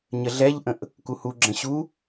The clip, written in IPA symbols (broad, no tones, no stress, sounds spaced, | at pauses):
ɲ ə ɮ ɛ ʎ ʔ ə̃ ʔ | k u h u ɡ͡ǁ ə̃ ɕ u